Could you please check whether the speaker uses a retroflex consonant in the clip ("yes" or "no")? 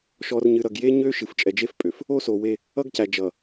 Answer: no